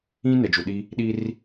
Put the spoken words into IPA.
ĩ˦ nɛ˨d͡ʒu˨ɗi˦ | ɗi˦r

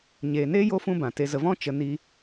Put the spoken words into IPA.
ɲeː˨neː˦ jo˦fũ˦ bã˨te˧ zə˨vɔ̃˦ t͡ʃə˧ ni˧

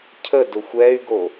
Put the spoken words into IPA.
cʰə dʊxʷɛy̯ɡo

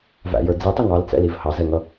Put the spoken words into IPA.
væ̰jə˞ d͡zitˤɪ ŋɑlt͡sɛ̰liv hɑzɛŋʌ

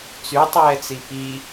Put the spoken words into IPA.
t͡sytˤɛːt͡si pi

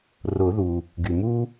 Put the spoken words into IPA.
rʊ˨˩˦ðu˩ | ɡy˩ mu˦

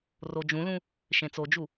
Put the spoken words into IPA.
rod͡ʒũlũ | ʃẽt͡sod͡ʒu

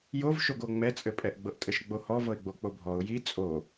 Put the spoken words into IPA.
jovʃoɡo ŋ͡mɛt͡sʼɘpʼɛʔ ɡ͡bɤʔtʼɘʃɡ͡bohɔ vɤɪ̯ɡ͡bok͡pobʱɔʊ̯ ji t͡sʼo

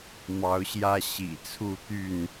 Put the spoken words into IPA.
mɑ˨˦ʊ̯ɕjä˦ ɕḭ˨˩t͡sʰu˥˨t̪y˥˨n

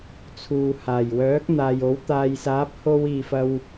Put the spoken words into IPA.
t͡sʰuː˨haː˨˩j wœː˨˥k̚n̪aː˨j o˨˥w t̪aː˨jsaː˨˥p̚ ho˥w iː˨fɐ˧w

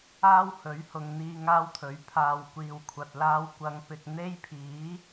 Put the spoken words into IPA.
aː˥whɵ˨˥ɥhʊ˨ŋ n̪iː˧ ŋaː˥wt̪ʰɵ˨˥ɥ pʰaː˨w kʷiː˨wkʷʰɐ˨t̚ laː˧wkʷɐ˨˧ŋpɪ˨k̚ n̪e˥jpʰiː˨˥

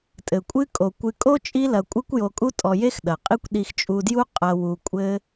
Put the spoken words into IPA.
tʼɘ˩kʷʼɨ˦ kʼo˩kʷɨ˨kʼo˥ t͡ʃʼi˦lɐ˨kʷʼɨ˦kʷ jo˨kʼu˦ tʼɔ˨ je˥xɗɐ˩qʼi˦kʷ ɗi˨xt͡ʃʼu˨dju˦ qʼɐ˨wu˨kʷʼɘ˦

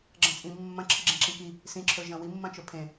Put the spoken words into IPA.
ɡ͡ǁɐ̃t͡sʼĩ mːɐ̃ǁʰɨɡ͡ǁẽ ǁĩki | sĩǁʰɵ ʒɐ̃wimːɐ̃ t͡ʃɵpʰẽ

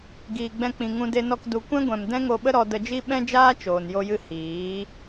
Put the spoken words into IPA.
ɡiː˨ ɡ͡bɛ̃˧k͡pĩ˨ ŋũ˧de˧nɔ˧k du˨kʷɛ̃˦ɡʷɛ̃˨m dɛ̃˦ŋo˧ɓə˦ɾɔ˧ də˧d͡ʒi˦ ɓɛ̃˦d͡ʒaː˦ t͡ʃoː˨njo˦jɨ˦ hiː˨˦

